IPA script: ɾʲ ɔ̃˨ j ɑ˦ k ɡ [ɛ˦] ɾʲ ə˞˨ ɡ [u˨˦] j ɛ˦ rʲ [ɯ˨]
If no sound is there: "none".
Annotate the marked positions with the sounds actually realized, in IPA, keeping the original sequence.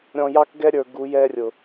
ɛ˦, u˨˦, ʊ˨

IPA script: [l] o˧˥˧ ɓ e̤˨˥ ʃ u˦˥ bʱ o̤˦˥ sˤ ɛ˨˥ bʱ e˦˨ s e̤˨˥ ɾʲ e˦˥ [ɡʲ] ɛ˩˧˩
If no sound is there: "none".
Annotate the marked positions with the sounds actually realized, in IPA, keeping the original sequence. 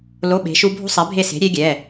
l, ɡʲ

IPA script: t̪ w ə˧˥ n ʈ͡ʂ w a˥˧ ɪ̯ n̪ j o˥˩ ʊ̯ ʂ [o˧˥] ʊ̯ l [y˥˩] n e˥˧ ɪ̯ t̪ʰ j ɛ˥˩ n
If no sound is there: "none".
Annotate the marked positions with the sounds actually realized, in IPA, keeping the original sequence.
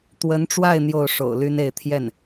o̰˨˩, y˥

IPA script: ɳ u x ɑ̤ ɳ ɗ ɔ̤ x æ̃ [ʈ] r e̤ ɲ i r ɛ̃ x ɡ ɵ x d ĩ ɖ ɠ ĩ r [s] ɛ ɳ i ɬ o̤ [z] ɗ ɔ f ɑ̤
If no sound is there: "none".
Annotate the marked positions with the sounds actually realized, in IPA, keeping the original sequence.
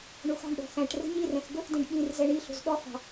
ʈ, z, z

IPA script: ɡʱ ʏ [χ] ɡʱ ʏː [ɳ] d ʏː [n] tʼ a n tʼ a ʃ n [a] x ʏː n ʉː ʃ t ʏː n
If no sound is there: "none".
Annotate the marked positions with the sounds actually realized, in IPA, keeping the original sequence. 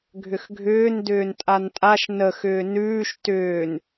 x, n, n, ə

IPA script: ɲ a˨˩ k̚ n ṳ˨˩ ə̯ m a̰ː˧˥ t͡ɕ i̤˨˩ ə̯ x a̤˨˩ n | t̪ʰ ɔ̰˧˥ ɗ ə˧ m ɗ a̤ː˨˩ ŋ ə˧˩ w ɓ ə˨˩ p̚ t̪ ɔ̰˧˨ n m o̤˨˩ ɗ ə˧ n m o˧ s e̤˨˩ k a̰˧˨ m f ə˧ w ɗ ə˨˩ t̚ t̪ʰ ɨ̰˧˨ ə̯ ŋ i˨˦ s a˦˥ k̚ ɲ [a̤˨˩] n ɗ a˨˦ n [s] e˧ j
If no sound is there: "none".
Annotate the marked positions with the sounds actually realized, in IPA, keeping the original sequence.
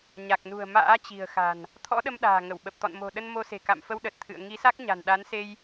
a̤˨˩, s

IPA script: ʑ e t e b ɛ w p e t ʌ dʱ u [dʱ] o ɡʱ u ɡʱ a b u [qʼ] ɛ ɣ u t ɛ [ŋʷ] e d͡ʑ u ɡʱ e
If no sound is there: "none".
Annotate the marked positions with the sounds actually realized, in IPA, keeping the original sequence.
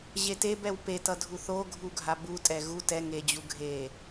θ, tʼ, ŋ

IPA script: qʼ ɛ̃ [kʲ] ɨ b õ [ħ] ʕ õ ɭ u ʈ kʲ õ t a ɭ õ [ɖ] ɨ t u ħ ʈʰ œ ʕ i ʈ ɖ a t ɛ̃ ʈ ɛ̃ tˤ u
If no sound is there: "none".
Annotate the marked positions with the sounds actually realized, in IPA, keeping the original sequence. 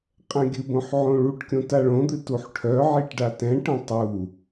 ɡʲ, ħ, d̪

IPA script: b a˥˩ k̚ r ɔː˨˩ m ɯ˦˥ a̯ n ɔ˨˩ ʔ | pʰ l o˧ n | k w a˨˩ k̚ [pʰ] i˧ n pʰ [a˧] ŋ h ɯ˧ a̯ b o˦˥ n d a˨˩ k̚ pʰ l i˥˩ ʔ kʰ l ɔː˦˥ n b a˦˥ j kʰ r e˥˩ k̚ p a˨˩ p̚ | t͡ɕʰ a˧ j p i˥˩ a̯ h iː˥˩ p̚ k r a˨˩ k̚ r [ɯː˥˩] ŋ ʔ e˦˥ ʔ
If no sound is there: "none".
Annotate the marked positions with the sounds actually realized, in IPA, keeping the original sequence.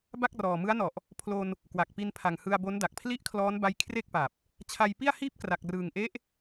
p, a˨˩, ɯː˨˩

